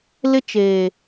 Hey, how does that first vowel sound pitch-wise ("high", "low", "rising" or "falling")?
high